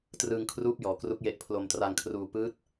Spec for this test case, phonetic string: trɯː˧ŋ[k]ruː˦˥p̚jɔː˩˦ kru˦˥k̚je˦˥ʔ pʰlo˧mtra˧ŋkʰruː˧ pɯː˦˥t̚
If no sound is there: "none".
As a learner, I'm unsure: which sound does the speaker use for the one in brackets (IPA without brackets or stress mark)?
kʰ